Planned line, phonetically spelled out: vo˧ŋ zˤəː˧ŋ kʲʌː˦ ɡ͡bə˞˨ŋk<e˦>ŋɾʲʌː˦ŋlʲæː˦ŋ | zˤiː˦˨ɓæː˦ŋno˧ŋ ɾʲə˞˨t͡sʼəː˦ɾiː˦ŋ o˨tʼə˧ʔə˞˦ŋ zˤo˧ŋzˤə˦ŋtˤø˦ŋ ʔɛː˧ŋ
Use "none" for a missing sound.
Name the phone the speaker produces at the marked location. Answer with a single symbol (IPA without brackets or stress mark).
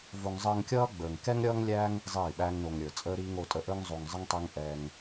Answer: ɛ˦